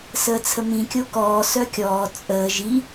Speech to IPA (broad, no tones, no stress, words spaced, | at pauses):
səːt͡sʰəmĩ kʲokɔː sœkʲɔː t͡sʼəː ʒi